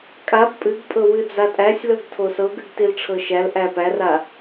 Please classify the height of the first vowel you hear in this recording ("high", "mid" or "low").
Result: low